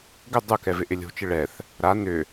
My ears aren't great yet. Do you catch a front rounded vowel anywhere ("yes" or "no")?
yes